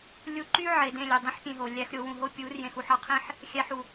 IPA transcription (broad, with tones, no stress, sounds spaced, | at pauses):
lʲ u˧ ǃ y˦ ʕ e˨ d ẽ˦˨ lʲ ø˨ dˤ ĩ˦ ħ pʲ ẽ˧ ɦ o˨ lʲ æ˦ x ɾʲ o˧ w ũ˨ ɦ o˦ pʲ u˨˦ r j ẽ˧ x u˧ ħ ɑ˦ qʰ ĩ˦ ħ | xʲ æ˧ ħ u˨